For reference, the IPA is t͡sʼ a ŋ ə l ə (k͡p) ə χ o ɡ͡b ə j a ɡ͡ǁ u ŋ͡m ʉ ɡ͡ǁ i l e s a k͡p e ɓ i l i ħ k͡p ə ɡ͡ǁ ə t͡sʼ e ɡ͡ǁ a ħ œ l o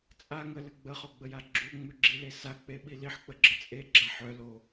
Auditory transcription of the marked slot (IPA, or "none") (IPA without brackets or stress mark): ɡ͡b